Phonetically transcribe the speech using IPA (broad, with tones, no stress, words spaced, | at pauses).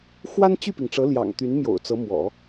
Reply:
xwa˥nt͡ɕy˥˩pi˩ŋʈ͡ʂɤ˧˥ ljɑ̰˨˩ŋt̪y˧˥n mjo̰˨˩ʊ̯t͡sɤ˧˥ mwɔ̰˨˩˦